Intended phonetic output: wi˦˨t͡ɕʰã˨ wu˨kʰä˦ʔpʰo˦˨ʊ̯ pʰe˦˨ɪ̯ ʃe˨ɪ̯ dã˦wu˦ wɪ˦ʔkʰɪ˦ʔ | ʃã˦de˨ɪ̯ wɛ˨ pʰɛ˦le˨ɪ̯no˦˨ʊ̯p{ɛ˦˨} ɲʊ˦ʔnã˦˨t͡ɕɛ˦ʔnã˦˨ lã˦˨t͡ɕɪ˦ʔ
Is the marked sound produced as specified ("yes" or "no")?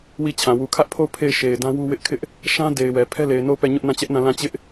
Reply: yes